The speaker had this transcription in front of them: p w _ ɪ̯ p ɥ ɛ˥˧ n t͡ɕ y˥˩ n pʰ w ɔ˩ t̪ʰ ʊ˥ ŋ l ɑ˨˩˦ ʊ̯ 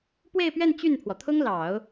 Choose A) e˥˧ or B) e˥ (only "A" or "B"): A